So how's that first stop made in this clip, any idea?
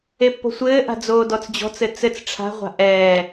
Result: plain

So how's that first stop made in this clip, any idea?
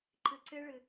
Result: click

